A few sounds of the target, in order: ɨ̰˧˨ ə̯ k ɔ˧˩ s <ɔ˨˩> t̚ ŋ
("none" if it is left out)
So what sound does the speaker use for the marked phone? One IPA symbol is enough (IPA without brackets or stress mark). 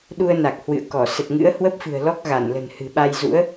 ə˨˩